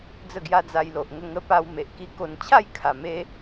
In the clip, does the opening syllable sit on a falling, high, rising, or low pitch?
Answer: falling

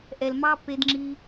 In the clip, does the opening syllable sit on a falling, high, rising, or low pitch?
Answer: low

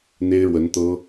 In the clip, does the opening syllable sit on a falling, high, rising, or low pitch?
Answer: high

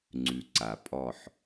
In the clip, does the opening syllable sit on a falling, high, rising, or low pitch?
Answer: low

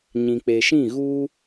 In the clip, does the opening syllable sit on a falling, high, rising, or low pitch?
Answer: low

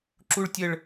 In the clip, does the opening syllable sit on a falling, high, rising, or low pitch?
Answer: high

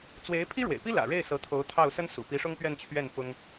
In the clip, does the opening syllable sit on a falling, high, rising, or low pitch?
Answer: rising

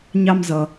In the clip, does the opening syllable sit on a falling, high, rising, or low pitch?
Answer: high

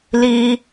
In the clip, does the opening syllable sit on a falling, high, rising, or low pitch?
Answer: high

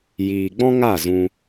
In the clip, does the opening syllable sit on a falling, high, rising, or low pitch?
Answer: low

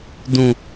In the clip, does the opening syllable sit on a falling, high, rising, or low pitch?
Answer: high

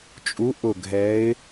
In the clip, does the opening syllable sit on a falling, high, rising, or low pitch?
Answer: rising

